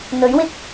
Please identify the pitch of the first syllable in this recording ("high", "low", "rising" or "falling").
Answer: rising